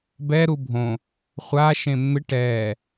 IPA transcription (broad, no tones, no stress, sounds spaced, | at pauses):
b ɛ ɾ u bʱ õ | χʷ a ʃ ẽ mː ɪ ʈ ɛ